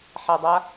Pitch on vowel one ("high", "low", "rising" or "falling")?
low